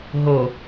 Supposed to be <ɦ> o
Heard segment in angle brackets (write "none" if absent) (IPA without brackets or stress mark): ɦ